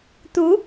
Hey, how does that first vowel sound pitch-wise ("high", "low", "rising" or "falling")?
rising